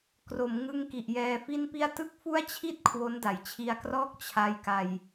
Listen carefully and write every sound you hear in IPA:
kro˩˦mŋɯ˧ŋ ki˨˩ʔjɛː˧fi˥˩npi˥˩a̯ tɯ˥˩k̚fu˥˩a̯t͡ɕʰi˥˩t̚ kʰwo˦˥nda˩˦jt͡ɕʰi˧a̯krɔː˥˩k̚ t͡ɕʰa˧jka˧j

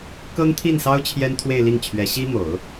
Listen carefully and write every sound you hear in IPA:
kɤ˥ŋt̪ʰi˥˩nsɑ˥ʊ̯ t͡ɕʰjɛ˥nt̪ʰwe˥˧ɪ̯li˥˩ŋt͡ɕʰɥɛ˧˥ ɕi˥mo˨˩˦ʊ̯

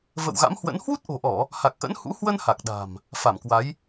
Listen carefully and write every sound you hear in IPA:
və̰˧˨w ɣa̰˧˥mhwə̰˧˥n hwu˦˥t̚ʔo̤˨˩ʔɔ˧˩˨ | ha˨˩k̚ʔə̰˧˥nhṵ˧˥ hwə˧n ha˨˩k̚ ɗa̤˨˩m | fa˧˩mkwa˨˦j

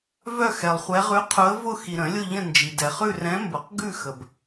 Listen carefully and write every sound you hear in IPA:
vœ˥˧xɛ˨lˠχʷɛ˧˥ ʁʉ˧˥qʰʊ˧˥ə̯vʊ˥˧ xi˨ɾə̃˨˩˦lʲʊ˥˧ ʎə̃˥˧nd͡ʒi˨ dɛ˨χʉ˥˧rɛ̃˧˥mbʊ˨˩˦q ɡʉ˥˧xə˨b

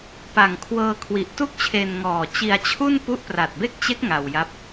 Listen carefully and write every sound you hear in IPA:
pa˨˩ŋkʰwɤː˧kʰwi˨˩ʔ tu˥˩k̚t͡ɕʰe˧nŋɔː˨˩ t͡ɕi˧a̯t͡ɕʰu˥˩n pu˦˥ʔpra˨˩t̚be˥˩k̚t͡ɕe˦˥k̚ ŋa˧wja˦˥p̚

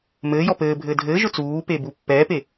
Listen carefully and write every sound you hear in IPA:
mɘː jɔpɘːbʱɘː dʱɘːʒʊ t͡suːpe bupːɛːpe

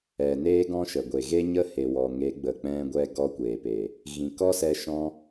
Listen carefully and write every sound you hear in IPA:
ɛ˨ neː˦ɡɔ̃˦ʃə˨ ɡʷe˨ɣe˦ɲə˦he˨ wɔ˨ŋe˨˦ ɡ͡bə˨k͡pɛ̃˧ ɡʷɛ˧ɡɔ˧kʷeː˨pe˨ | ɣĩ˨kɔ˦sɛ˧ ʃɔ̃˦

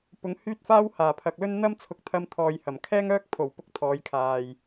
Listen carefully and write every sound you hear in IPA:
pʊ˨˧ŋhyː˥t̚ faː˥whaː˨˩pʰɐ˨k̚lɵ˥n n̪ɐ˥mt͡sʰʊ˨˥k̚t̪ʰɐ˧m t̪ʰɔː˨j hɐ˨˩m kʰɛː˥ŋœː˥k̚ pʰo˨˩w pʊ˧k̚t̪ʰɔː˨˧jkʰaː˨j

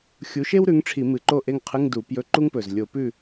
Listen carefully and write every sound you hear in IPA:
xʲu˨˥ʃe˥wɾʉ˨˥ŋʈ͡ʂʰi˧˩˧ mɨ˨˩ǃo˥˨ʔe˥˨ŋqʰɨ˧˥˧ŋ du˧˩˧ pjɵ˧˥˧ǃu˥ŋpɵ˨˩z lʲo˧˩˧pʉ˥˨

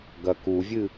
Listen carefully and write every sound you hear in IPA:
ɡɐkuvʲɨ

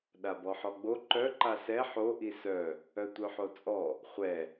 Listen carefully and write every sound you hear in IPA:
ɗabɔħɔɡ͡bo ǃœ ǃasɛ ħo ʔisœ | œtʷœħot͡sʼɔ | χʷɛ

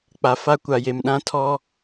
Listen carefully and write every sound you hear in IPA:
k͡pa˨ fa˦kʷa˨je˨mɗã˦ tʰɔ˦

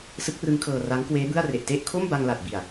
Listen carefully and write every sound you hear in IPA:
sɯ˦˥k̚rɯ˦˥ŋkʰɤː˧ ra˦˥ŋkweː˦˥bɯ˥˩a̯re˨˩ʔ te˥˩ʔ kʰo˥˩mba˧ŋ la˨˩t̚bi˨˩a̯

